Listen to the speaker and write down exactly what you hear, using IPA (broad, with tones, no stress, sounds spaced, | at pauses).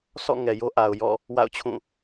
sʰ ɔ̰˦˨ ŋ ɛ˨ j o˦ ʔ a˨ ʊ̯ j ɔ̰˦˨ | w a̰˦˨ ʊ̯ t͡ɕʰ ũ˦˨